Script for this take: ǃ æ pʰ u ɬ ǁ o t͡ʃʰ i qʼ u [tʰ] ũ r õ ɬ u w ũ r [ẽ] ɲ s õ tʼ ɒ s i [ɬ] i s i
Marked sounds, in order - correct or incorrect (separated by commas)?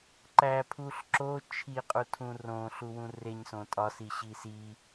correct, incorrect, incorrect